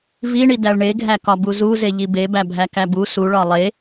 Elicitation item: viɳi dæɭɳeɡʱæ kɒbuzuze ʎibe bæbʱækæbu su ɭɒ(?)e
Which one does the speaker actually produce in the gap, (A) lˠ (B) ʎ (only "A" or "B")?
A